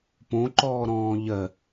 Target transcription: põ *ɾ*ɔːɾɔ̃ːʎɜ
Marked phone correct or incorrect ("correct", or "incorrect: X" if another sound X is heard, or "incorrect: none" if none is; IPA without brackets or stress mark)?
incorrect: ǃ